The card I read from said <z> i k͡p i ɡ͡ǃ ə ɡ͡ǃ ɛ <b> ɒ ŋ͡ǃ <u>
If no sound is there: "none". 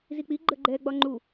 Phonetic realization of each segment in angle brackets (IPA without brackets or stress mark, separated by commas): z, ɡ͡b, u